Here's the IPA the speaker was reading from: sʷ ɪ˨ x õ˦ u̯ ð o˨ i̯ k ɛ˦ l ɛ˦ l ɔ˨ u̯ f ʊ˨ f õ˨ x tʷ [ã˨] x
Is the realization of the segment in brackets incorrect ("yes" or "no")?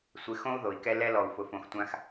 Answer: yes